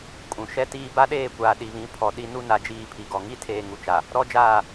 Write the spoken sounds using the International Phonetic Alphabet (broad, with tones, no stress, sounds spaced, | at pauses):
kʼ ũ˨ ʃ ɛ˦ t iː˦ b a˦ ɗ eː˦˨ kʷ aː˨ ɗ i˨ β ĩ˨˦ pʰ ɔ˨ ɗ i˦ n u˦ n a˨ d͡ʒ iː˦˨ pʰ i˨ ɡ ɔ˨ ŋ i˦ tʰ eː˨ ŋ u˨ t͡ʃ a˨ | ɾ ɔ˦ d͡ʒ aː˦˨